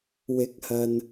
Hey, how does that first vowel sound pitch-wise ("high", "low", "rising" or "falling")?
rising